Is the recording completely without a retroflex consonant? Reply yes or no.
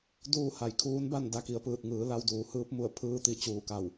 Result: yes